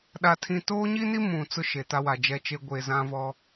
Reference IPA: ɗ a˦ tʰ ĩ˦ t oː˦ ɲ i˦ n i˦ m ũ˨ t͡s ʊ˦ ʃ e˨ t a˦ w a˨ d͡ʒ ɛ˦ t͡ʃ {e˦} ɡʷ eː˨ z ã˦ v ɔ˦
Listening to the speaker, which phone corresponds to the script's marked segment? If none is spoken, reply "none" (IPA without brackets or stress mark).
e˦